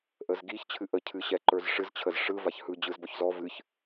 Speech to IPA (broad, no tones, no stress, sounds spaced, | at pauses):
ʔ ə z ɡ i ç t͡ɕʰ ɨ ʔ ə cʰ ɨ ɕ ɛ ǃ ə˞ z ʂ ɨ z t͡ɕʰ ə z ʂ ɯ v a ç h ɯ d͡ʑ ɯ z b ɔ ç z ɔ v ɨ ç